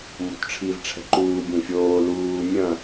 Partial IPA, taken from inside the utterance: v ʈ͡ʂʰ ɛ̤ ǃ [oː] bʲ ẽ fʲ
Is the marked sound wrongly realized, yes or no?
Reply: yes